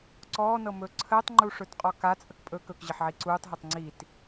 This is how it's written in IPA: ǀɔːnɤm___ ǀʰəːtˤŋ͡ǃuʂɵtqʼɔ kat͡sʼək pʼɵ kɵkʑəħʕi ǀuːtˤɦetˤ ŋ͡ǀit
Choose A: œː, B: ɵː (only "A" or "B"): B